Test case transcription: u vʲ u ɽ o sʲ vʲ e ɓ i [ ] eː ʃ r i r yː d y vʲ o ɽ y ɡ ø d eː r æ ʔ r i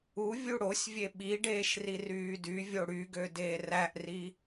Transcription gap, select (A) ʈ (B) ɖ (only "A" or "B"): B